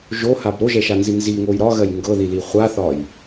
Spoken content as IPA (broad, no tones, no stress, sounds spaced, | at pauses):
ʒ o h a b ɾ o ʒ ɛ ʃ a n z i n z i ŋ o j ɾ ɒ ɣ ɜ j ŋ ɡ ɤ ð i l i χʷ a θ ɒ j